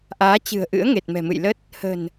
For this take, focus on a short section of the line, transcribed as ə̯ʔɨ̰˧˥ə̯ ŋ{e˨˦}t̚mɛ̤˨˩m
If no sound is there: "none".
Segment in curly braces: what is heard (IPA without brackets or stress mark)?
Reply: e˨˩